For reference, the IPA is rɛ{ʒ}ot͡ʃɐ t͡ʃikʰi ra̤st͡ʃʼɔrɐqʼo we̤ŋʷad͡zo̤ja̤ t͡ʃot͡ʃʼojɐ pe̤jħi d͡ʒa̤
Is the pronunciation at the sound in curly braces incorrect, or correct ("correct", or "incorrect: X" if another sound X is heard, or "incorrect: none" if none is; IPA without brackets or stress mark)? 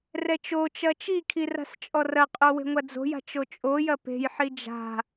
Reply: incorrect: t͡ʃ